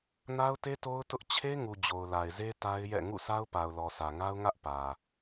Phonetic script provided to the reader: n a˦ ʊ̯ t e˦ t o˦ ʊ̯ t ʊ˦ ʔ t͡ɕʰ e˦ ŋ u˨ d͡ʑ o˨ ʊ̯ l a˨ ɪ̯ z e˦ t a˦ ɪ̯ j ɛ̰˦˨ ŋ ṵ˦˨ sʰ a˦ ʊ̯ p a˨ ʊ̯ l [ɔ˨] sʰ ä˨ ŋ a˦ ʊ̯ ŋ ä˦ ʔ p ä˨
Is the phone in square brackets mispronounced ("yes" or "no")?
no